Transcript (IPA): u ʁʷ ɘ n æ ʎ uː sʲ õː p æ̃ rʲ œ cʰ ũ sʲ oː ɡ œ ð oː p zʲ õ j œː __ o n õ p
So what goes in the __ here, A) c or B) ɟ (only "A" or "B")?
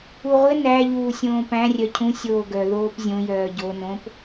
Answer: B